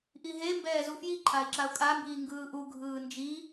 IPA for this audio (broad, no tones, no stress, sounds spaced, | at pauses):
ʔ i ɦ e m b ɛː z u f j i ǃʰ a ɪ̯ ǁ a ʊ̯ kʼ a m b iː ŋ ɡ ɯː ʔ u ɡʱ ɯː n d͡ʒ i